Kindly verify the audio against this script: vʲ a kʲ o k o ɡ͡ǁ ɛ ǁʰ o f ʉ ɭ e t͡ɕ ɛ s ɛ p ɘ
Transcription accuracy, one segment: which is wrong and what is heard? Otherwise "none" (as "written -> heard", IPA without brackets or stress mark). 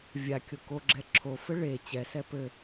ʉ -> ɘ